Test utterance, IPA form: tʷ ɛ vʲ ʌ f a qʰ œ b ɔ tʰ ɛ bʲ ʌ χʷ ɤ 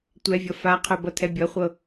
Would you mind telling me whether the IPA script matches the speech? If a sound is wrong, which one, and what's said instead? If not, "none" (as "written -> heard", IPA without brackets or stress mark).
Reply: ɔ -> ʌ